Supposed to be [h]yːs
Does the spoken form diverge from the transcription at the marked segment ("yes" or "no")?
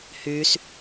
no